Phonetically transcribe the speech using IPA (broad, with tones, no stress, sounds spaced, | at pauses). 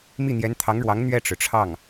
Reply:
m i˥˩ n̪ j ɛ˧˥ n t̪ʰ ɑ˧˥ ŋ ɻ w ɑ˧˥ ŋ n̪ ɥ ɛ˥˩ ʈ͡ʂ ɻ̩˩ ʈ͡ʂʰ ɑ˥˩ ŋ